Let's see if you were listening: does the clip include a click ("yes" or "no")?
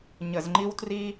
yes